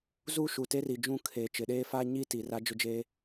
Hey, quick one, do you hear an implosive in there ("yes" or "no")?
yes